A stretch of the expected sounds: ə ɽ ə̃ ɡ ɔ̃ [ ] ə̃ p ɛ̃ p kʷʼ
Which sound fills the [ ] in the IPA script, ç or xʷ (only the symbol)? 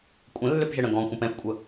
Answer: xʷ